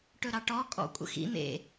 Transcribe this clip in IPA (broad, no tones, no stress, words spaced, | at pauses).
ʈɵɾɑʈɔ kʼɔ̰kʷʼə̰xḭ n̪ḛ